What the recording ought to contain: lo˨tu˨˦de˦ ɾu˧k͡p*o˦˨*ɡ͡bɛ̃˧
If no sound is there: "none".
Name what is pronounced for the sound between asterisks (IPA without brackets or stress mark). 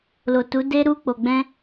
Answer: o˨